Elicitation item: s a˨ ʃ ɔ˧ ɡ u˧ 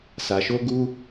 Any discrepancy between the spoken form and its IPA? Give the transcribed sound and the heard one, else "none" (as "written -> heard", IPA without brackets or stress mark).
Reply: ɔ˧ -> o˧